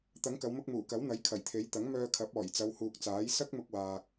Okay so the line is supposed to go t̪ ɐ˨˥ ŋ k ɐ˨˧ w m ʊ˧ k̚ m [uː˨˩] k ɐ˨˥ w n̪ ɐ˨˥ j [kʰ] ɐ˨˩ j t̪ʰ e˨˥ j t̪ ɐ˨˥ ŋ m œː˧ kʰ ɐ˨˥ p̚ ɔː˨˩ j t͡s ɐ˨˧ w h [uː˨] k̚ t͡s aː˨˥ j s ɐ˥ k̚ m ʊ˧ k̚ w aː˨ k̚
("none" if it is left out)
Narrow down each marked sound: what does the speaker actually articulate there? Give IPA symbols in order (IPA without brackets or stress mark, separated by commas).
uː˨˩, kʰ, uː˨